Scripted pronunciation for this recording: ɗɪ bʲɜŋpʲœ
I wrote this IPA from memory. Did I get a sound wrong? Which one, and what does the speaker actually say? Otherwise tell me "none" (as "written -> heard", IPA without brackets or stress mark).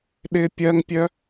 bʲ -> pʲ